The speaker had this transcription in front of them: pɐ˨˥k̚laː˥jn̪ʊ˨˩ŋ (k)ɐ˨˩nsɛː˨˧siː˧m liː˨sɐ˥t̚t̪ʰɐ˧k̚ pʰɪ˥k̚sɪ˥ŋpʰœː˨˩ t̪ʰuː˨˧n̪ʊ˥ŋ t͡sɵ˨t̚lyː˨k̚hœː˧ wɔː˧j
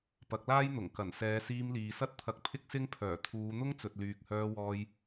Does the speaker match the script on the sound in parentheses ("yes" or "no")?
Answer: yes